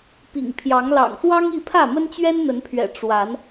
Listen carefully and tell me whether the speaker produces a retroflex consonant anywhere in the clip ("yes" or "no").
yes